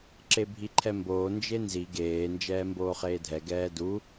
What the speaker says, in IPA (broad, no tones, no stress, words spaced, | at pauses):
ǁebʱiǃʰɛmboː nd͡ʒenzi ɡeː nd͡ʒɛːmboːχeːdʱɛ ɡɛːdu